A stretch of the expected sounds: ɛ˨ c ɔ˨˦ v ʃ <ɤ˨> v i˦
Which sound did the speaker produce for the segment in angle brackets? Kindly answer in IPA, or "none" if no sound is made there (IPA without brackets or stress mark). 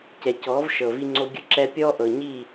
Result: ɤ˨